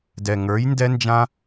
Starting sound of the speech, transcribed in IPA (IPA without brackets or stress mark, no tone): d